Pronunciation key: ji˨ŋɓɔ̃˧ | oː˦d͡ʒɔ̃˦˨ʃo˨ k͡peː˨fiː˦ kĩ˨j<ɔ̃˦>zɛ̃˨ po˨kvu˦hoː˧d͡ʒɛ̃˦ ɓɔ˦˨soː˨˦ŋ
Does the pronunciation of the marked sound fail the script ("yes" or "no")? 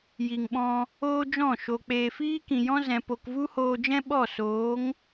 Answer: no